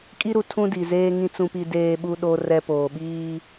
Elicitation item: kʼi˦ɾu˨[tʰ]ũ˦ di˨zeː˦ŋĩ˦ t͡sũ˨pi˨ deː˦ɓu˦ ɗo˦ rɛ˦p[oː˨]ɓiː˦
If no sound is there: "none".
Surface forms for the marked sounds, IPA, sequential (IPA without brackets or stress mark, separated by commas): tʰ, oː˨